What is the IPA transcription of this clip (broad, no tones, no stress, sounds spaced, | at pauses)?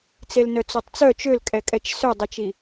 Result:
t͡s e l n œ t͡s o tˤ t͡s œ t͡ʃ ø l kʼ ɛ kʼ ɛ t͡ʃ s œ dˤ i t͡ʃ i